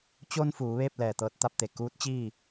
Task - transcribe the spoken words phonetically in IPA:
t͡ɕ o˧ n f uː˩˧ ʋ eː˥˨ p̚ l ɛː˧˩ t̪ ɤː˧ t̚ t̪ a˥˨ p̚ t̪ e˩ k uː˧˥ t̚ t͡ɕ iː˥˨

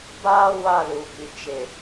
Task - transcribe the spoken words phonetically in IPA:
b aː˦ w a˦˨ l u˨ b i˨ t͡ʃ ɪ˨

